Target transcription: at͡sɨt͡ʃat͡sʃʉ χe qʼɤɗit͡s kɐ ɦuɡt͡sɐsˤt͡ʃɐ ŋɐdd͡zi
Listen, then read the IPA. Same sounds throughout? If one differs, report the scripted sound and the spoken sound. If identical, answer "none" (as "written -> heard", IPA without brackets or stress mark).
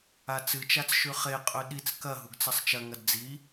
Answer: ɤ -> ɵ